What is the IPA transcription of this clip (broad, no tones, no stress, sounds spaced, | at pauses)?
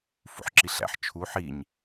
f ṵ ħ ǁ i ɬ æ̰ ħ t͡ʃʰ u ħ i ɲ